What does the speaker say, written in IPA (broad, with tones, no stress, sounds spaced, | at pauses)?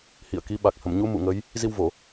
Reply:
h ḭ˧˨ ə̯ k i˨˦ ɓ a˨˩ k̚ h ə˧˩ m ɲ u˨˦ m ṵ˧˨ ŋ ə˨˦ j | z i˧ w v o˧˩˨